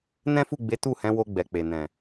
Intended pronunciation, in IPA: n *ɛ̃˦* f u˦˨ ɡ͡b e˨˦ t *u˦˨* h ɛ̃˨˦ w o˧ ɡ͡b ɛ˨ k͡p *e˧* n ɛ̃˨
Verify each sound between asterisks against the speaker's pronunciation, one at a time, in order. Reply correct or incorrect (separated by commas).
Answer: correct, correct, incorrect